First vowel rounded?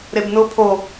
no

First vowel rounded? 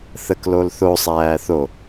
no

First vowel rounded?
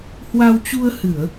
no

